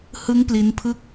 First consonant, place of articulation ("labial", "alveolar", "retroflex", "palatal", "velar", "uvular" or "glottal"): glottal